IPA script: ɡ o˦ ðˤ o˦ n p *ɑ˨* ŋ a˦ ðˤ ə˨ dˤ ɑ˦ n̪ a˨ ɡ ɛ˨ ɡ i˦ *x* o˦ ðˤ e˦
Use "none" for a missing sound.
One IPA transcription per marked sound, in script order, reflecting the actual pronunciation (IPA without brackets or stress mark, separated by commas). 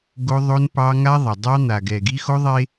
ɑ˦, x